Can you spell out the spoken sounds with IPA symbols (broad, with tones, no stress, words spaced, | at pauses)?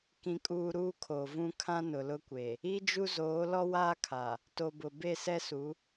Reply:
kĩ˨kʼuː˨ ɾuː˦kʰoː˨vũ˦ kʰã˦nʊ˨lʊ˦kʷe˨ | i˦d͡ʒu˦zoː˨˦ lɔ˦waː˦kʰa˨ | to˨bʊ˨ be˦˨sɛ˦su˨˦